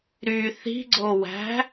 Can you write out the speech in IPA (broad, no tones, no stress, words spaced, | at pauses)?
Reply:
ɾy θi̤ɡ͡ǀowæ̤